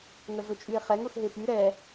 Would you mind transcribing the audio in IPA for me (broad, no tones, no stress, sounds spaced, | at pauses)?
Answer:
ŋ ə ɮ ʊ t͡ʃʼ y e̯ χ ɛ ŋ ʊ x ɦ e p y ɾ ɛ